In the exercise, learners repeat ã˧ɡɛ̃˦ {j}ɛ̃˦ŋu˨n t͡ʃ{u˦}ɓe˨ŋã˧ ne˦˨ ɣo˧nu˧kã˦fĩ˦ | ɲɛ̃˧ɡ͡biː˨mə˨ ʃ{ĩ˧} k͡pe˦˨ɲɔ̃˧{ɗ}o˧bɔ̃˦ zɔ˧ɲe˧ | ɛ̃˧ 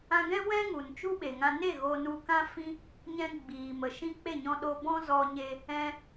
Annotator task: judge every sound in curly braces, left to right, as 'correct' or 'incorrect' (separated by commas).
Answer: incorrect, correct, incorrect, correct